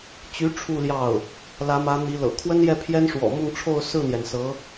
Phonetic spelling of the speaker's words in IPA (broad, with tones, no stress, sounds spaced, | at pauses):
t͡ɕ y˧˥ ʈ͡ʂʰ u˥˧ l j ɑ˥˩ ʊ̯ | l ä˧˥ m ä˧˥ n̪ i˧˥ l ɤ̰˨˩ kʰ w ə˥ n j ɛ˥˩ pʰ j ɛ˥ n ʂ w ɔ̰˨˩ m ʊ˥˧ ŋ ʈ͡ʂʰ o˥˧ ʊ̯ s ɹ̩˥˩ n̪ j ɛ˩ n s ɤ˧˥